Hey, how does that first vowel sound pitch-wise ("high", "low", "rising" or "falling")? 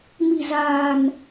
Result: low